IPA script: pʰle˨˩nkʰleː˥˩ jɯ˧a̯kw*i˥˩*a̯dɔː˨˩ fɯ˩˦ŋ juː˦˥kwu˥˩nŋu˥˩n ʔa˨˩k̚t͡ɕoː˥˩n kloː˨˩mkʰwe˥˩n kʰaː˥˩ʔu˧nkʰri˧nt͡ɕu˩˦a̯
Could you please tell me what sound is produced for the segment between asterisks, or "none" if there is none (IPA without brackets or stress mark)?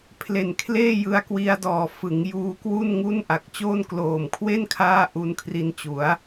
i˧